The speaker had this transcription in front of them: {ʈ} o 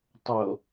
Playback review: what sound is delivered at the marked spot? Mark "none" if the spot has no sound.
tˤ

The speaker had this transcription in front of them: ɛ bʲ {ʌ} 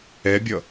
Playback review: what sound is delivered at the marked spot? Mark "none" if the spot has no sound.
ʌ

